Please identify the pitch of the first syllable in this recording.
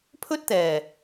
high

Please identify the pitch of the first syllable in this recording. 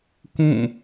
falling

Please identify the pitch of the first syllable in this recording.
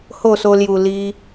falling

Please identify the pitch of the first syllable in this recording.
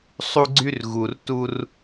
high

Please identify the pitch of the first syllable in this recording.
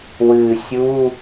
low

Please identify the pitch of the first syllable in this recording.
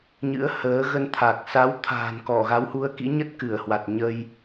rising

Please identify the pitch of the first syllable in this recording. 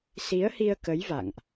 rising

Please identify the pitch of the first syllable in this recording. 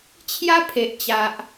high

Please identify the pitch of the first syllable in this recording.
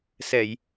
low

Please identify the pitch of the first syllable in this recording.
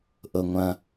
low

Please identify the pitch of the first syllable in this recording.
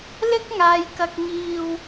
high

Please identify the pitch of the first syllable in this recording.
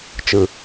low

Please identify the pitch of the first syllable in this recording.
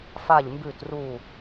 falling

